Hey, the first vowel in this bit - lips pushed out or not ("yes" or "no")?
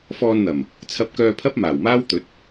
yes